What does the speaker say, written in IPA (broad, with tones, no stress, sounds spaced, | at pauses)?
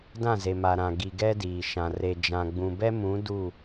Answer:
d ã˦˨ z e˨ m a˨ ɾ ã˨ ɡ i˨ ɡ ɛ˦ d iː˨ ʃ ã˨ r e˨ d͡ʒ ã˨ ɡ͡b ũ˨ b ɛ˦ m ũ˨˦ d u˦˨